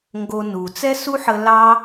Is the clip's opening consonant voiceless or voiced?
voiced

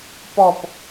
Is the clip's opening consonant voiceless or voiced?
voiceless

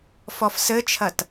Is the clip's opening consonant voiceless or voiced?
voiceless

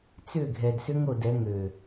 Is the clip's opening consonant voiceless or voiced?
voiceless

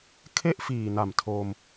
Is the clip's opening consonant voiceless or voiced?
voiceless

